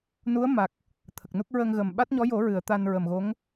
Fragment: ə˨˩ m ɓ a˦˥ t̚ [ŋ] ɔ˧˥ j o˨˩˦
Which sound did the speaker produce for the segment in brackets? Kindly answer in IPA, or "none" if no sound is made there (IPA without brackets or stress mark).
ɲ